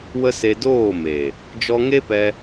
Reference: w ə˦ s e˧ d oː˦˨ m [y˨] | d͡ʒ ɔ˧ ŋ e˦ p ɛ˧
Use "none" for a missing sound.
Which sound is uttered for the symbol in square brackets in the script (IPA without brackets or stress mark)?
e˨